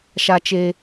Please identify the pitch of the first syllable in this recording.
high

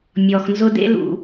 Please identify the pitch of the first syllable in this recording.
low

